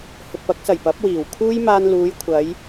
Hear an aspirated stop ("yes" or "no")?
yes